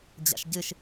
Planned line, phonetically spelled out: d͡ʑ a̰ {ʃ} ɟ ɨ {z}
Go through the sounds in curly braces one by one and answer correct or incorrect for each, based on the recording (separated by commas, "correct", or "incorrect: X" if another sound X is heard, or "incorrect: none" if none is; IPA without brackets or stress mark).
correct, incorrect: ʃ